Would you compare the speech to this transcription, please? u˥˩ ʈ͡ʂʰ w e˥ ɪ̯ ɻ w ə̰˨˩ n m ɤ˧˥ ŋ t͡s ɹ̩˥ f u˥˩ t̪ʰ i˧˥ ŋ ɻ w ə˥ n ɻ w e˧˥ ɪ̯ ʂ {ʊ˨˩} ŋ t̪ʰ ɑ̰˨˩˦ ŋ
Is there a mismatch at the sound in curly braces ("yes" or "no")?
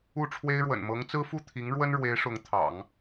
yes